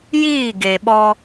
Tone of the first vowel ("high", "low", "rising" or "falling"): falling